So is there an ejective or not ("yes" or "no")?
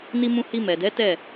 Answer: no